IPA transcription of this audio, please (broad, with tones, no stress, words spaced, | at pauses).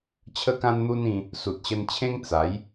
t͡ɕʰə˦kã˦nn̪u˦nĩ˧ | su˨t̚ɕə˧nt͡ɕʰẽ˦ŋ t͡sa˨˦j